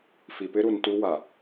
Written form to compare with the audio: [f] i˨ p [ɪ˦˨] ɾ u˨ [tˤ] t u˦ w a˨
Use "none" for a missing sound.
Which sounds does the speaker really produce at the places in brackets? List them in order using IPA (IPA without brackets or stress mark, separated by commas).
f, ɪ˦, n